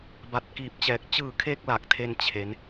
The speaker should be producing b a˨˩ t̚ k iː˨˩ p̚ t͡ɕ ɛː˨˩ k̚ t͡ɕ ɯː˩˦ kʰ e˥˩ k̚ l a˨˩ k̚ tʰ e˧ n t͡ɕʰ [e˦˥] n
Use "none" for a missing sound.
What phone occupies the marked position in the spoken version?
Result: e˦˥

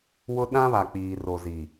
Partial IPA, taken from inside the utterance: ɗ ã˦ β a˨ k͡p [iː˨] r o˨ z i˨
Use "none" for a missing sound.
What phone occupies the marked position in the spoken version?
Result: iː˨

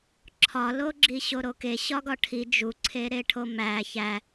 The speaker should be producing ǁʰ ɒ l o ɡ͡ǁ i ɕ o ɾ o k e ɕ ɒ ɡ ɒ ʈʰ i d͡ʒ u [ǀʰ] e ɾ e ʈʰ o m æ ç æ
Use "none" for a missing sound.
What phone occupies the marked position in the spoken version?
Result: ǀʰ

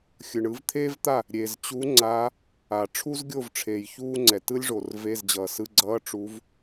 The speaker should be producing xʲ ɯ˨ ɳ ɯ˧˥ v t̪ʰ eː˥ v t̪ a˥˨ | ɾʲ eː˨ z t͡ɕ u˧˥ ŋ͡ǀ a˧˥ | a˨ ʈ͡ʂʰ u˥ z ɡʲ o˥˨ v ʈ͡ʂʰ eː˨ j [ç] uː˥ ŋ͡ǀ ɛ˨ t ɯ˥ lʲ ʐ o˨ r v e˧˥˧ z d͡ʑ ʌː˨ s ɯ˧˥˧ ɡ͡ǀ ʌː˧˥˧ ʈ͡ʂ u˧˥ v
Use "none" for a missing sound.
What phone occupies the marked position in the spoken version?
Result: ç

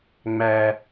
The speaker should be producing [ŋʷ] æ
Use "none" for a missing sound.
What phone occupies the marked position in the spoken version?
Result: ŋ͡m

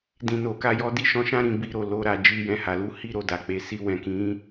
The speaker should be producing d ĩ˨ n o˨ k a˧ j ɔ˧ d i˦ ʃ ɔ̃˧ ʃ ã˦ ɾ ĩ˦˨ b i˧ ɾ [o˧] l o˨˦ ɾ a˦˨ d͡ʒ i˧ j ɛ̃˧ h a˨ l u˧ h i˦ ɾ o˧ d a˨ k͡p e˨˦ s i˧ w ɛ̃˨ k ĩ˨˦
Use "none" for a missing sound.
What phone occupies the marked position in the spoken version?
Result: o˨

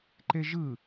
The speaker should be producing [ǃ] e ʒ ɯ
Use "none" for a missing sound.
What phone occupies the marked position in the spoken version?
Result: ǃ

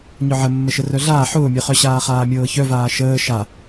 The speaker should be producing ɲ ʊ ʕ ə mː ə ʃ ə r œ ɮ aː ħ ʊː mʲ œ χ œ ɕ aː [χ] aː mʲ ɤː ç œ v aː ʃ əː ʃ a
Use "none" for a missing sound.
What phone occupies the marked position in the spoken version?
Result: χ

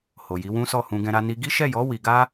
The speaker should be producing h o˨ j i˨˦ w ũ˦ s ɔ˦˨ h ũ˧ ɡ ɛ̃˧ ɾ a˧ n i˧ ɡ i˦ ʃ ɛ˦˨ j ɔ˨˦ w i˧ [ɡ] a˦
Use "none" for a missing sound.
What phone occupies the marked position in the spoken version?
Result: ɡ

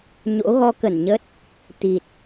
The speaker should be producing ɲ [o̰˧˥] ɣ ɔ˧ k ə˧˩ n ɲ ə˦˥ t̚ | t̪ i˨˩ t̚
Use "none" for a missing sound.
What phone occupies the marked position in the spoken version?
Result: o̰˧˥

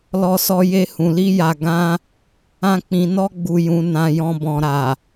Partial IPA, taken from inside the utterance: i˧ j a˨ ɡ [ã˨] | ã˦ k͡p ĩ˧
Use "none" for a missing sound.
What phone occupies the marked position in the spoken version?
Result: ã˧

